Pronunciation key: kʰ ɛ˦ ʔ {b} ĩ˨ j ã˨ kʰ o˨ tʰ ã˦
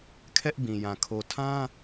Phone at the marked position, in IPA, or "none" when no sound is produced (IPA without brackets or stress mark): b